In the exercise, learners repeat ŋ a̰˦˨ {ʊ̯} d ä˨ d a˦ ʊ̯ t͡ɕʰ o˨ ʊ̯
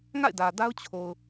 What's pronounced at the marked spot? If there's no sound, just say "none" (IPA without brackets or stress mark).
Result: ɪ̯